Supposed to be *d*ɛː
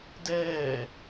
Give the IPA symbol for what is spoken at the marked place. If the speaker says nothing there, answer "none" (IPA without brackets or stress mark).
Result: d